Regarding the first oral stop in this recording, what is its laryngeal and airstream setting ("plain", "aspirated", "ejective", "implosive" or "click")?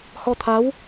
aspirated